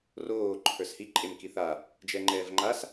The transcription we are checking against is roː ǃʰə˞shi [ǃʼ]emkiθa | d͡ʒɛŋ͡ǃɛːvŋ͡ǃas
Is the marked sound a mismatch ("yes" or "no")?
no